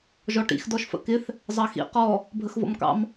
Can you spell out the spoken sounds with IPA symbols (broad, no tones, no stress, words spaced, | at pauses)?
ʒɔʈḭx dɔʃfə̰kɪθ | zˤɑxḭ qɔ | bʱəxvɔ̰mkɑ̰m